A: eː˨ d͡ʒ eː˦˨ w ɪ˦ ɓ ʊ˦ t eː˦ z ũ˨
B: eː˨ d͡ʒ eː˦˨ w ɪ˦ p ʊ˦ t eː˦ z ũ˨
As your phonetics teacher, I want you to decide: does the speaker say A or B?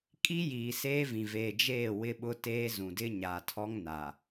A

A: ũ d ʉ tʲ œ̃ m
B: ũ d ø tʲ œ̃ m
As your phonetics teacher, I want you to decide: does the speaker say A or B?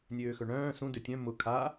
B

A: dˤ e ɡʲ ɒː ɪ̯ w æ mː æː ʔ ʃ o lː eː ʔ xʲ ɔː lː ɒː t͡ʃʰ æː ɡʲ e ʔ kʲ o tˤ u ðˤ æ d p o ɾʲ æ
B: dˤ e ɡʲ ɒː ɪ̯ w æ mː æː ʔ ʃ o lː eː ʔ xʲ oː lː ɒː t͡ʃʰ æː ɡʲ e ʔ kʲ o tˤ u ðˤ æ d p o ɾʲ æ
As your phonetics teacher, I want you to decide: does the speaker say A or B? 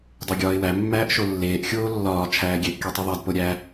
B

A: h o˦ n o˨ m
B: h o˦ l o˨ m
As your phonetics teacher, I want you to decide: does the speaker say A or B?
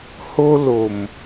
B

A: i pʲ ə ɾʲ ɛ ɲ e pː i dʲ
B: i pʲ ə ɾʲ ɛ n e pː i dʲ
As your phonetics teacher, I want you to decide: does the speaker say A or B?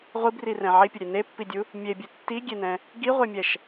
B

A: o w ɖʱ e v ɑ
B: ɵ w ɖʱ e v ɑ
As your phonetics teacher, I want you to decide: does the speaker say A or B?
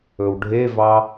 B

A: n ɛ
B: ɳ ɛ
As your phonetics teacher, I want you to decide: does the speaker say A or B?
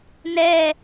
A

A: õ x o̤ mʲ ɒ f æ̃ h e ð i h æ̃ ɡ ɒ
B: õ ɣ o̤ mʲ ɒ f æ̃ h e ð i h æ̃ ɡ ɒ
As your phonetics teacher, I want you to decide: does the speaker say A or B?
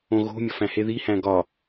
B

